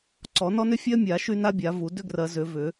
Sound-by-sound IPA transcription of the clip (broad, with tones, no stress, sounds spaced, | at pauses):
ǀ ɔ˨˩˦ n ɔ˥ n ʏ˥ fʲ ɜ˥ mʲ a˨˩˦ ʃ y˥ n a˥ bʲ a˨˩˦ v u˨˩˦ d ʏ˥ ɡ r ɜ˨˩˦ z ʏ˨˩˦ v ʏ˨˩˦